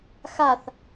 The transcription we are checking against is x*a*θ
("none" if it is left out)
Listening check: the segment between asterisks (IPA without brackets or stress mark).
a